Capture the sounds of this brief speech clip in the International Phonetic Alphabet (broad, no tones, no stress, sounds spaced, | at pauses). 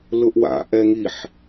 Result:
l ʊ ʔ w a̰ ʔ ɛ ŋ i ħ